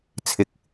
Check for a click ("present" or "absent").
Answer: absent